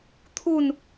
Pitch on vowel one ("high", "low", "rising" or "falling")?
falling